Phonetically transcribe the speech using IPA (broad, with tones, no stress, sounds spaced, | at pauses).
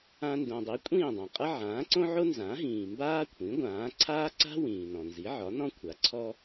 ã˧ n d õ˩ dˤ i˩˥ kʷʼ ĩː˥˩ dˤ ã˩ qʼ ʌ˥ ʕ ãː˩˥ ǀ õ˥ ʕ o˥ n z ã˩˥ ɦ ĩː˩ m b aː˥ kʷʰ ĩ˩˥ ɡʷ ãː˩˥ ǀʰ aː˥ ǀ a̤˥ w ĩː˩ n ɔ̃˩ n z i˩˥ ʕ ɒ˩˥ n ɔ̃˥ kʷʰ a˩˥ ǀʰ ɔ˥